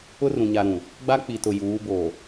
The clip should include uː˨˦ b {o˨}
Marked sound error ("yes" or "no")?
no